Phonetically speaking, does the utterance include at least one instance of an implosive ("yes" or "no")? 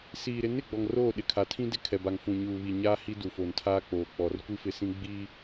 yes